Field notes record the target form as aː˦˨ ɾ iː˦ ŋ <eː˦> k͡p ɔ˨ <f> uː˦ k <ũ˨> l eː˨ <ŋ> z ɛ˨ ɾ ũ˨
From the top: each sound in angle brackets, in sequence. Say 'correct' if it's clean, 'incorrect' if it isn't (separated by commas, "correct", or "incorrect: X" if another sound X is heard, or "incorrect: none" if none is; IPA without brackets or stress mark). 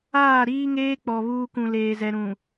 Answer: correct, incorrect: β, correct, incorrect: none